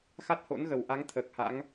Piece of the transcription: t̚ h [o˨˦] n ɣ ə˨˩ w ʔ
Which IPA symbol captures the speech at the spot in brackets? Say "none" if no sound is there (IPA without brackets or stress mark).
o̰˧˥